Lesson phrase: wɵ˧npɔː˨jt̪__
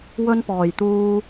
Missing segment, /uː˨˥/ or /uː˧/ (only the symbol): uː˧